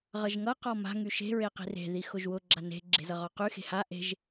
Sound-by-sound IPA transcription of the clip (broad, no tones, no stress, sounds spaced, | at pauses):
ʁ ʌ ʒ ŋ ʌ q ɔ m a̤ ŋ y ʃ e̤ ɹ e q i̤ r e̤ ð i x ʊ ʒ w ʊ ɡ͡ǁ a n e̤ ɡ͡ǁ e̤ z ʌ ʁ ɔ q y x e̤ h a ʔ e̤ ʒ